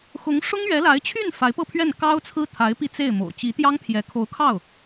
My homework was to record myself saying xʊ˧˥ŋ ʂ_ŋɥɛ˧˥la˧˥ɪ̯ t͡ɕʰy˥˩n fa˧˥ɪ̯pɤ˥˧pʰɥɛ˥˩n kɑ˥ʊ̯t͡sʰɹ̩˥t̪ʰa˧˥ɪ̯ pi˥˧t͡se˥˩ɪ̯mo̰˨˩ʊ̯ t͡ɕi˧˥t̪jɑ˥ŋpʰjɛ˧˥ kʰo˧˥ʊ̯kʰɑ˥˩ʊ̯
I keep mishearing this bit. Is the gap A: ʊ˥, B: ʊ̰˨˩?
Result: A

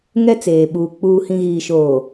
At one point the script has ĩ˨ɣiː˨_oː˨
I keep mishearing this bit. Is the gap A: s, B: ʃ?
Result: B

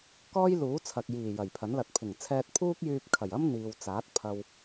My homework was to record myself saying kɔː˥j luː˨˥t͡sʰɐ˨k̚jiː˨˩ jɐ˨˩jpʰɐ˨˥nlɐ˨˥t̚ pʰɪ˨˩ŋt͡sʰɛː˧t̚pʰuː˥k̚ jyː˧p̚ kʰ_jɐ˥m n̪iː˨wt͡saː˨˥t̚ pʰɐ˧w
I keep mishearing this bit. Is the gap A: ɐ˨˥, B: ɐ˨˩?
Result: B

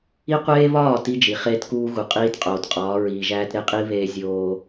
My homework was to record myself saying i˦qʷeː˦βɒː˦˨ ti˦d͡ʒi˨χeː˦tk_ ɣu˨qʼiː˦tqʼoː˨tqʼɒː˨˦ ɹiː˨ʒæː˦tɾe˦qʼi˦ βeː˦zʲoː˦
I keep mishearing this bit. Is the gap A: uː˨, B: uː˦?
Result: B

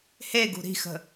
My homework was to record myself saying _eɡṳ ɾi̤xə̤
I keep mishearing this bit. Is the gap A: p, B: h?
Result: B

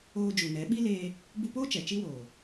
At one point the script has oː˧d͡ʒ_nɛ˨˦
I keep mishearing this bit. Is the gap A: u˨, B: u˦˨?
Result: A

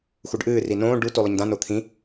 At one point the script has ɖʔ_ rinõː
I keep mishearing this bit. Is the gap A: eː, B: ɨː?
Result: B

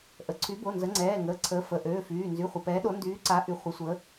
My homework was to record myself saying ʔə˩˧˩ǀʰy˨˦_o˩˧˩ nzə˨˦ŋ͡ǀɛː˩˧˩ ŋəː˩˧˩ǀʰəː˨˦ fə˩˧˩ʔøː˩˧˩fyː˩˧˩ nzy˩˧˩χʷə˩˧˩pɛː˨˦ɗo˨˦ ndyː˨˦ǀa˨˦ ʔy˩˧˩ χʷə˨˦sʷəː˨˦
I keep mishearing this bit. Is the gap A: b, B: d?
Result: A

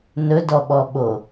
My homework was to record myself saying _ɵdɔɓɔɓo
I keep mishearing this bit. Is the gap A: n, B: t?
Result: A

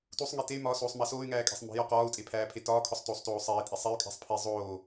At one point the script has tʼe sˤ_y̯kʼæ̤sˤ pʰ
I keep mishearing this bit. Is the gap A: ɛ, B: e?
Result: B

